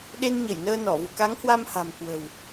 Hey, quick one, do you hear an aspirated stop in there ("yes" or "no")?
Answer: no